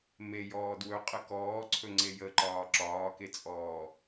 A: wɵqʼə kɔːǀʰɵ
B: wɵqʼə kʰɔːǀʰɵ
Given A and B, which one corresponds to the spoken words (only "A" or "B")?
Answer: A